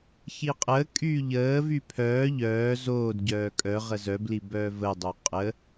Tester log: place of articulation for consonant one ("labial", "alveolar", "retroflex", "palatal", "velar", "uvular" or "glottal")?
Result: palatal